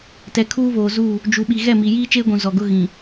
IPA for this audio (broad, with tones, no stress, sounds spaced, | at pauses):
t ɛ˨ kʰ uː˦ β oː˨ z uː˦˨ | d͡ʒ u˨ ɓ i˨ ɣ ɛ˦˨ m i˨ j iː˦ t͡ʃ eː˦ ɡʷ ũ˨ z ɔ˨ ɡ ʊ˦ ɣ ĩ˨